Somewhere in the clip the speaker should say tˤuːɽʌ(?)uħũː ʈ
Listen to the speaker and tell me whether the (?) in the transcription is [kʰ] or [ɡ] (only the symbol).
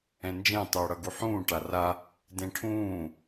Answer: ɡ